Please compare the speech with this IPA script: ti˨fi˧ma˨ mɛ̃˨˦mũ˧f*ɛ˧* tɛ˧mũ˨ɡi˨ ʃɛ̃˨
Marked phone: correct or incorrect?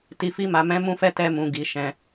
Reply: correct